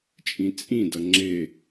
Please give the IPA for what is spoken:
t͡ʃʼ ĩ t͡sʼ ĩ d ʌ ŋ͡ǁ e

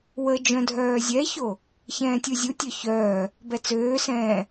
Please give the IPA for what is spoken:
w ə d͡ʒ œ̃ dʱ œː zʲ ɛ ç o | ç ɛ̃ː tʲ u zʲ u tʲ œ ç œː | b ɛ t͡s øː s ɛ̃ː

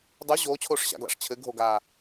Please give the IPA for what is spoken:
dˤ u ʑ oː t͡ɕʰ oː ʂ ɕ a̰ ɡ l a̰ ʂ t͡ɕʰ ɘ ɡʱ o ɡ aː

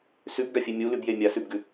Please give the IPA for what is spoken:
s ʉ b ɡ a fʲ e mʲ u l ʉ b j e mʲ a s ʉ b ɡ ʉ

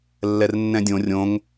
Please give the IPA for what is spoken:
lː ɛ r nː ɛ̃ dʲ õ rʲ õ ŋ

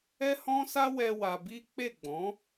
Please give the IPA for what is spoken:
ɛ˦ h ɔ̃˦ s a˦ w ɛ˧ w a˧ b i˦ k͡p e˦˨ ɡ͡b ɔ̃˨˦

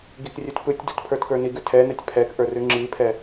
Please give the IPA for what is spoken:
ɡ i k rʲ ʉ t p ɯ tʲ d u t pʰ ə˞ t k ə˞ n i ɡ ʉ tʰ ɛ n ɛ tʲ pʰ ɛ k ʔ ə˞ r ʉ ŋ͡ǁ i pʰ ɛ

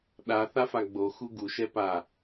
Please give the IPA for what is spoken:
ɗ a θ a f a ɡ͡b o x u ɡ u ʃ ɛ p a

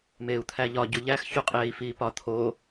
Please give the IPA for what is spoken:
m eː u̯ t̪ʰ æ ʎ ɒ ɟ u ʎ æ x ç u qʼ eː i̯ f iː p ɒ t̪ʰ o

